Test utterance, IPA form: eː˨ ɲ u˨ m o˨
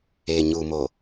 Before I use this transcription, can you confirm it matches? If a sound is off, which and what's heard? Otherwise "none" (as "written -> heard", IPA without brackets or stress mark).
none